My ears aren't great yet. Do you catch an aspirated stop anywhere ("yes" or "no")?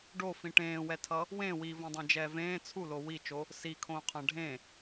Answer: yes